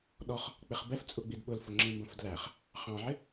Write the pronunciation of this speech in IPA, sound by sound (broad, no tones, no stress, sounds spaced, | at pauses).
ɗ ɔ χ | k͡p ɪ χ b ɛ f t͡sʼ u ɡ͡b i d ɓ ʊ l f ʊ ŋ͡ǁ ĩ m b ə̃ f d l æ χ | χ ɑ̃ ʕ ɪ